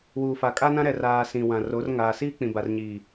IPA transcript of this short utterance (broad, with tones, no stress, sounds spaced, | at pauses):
w uː˨ f a˨ kʼ a˦ n ã˦ ɾ ɛ˨ r aː˨ s ĩ˨ w ã˨ r o˨˦ r ŋ aː˨ s iː˦ k͡p ĩ˨ b a˨ r ɲ iː˨